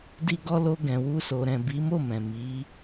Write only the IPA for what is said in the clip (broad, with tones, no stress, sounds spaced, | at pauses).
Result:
d i˧ ɡ ɔ˧ l o˧ ɡ ɛ̃˨ w u˧ s o˨ ɾ ɛ̃˨ b i˨˦ m o˦˨ m ɛ̃˨ m i˨˦